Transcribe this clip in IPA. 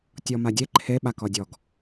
tʲ ɔ m a dʲ e ǃʰ e ɓ a k ɔ dʲ ɔ ɡ

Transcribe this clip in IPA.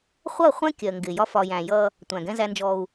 χʷ ʌ˦˨ χʷ ɛ̃˦ kʲ ɜ˨ ŋ ɡ ɪ˨ j ɒ˦ f ɒ˨ j æ̃˨ j ʌ˦ | tʷ æ̃˨ ɡ ɛ̃˦ z æ˦ n d͡ʒ ɔ˦ u̯

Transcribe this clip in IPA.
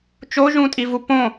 t͡ʃ o ʒ ũ tʼ i v u p õ

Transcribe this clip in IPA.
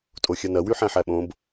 tʼ o xʲ ɐ n ɐ w y ħ æ̃ ħ æ ɓ õ b

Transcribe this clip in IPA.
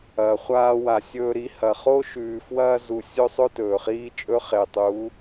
ɐː˨ χʷ aː˧ w a˨ sʲ ɵː˧ ɾ i˧ h ɐ˨ χ o˦ ʃ ʉː˨ f w ɐː˧ z u˨ sʲ ɵ˧ sˤ ɵ˧ t ɵː˨ χ iː˦ t͡ʃʼ ɵ˦ χ e˨ tˤ u˨˦

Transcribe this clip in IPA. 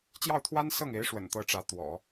t͡ɕ j ɑ˥˩ ʊ̯ t̪ʰ w a˥ n s ɤ˥˩ ŋ e˧˥ ɪ̯ ʂ w ə̰˨˩ n t̪ ɤ˥˩ ʈ͡ʂ ä˧˥ t̪ w ɔ̰˨˩˦

